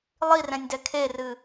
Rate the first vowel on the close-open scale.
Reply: close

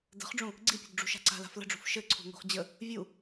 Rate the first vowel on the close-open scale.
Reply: mid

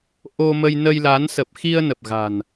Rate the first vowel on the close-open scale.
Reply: mid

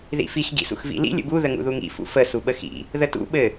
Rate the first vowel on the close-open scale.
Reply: close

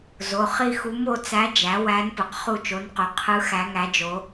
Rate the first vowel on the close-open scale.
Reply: mid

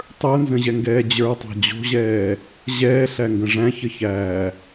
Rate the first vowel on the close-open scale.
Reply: mid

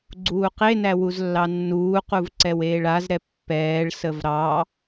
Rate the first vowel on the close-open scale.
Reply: close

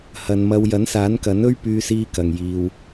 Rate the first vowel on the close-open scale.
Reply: open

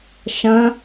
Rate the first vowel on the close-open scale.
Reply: open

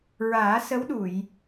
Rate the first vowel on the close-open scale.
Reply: open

